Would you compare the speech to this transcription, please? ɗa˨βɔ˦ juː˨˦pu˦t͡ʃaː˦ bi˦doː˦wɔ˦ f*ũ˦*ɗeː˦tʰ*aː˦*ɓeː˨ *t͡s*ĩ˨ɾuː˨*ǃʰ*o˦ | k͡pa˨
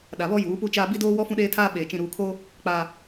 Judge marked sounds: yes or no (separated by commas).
yes, yes, no, no